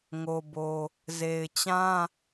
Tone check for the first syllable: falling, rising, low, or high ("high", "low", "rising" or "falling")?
low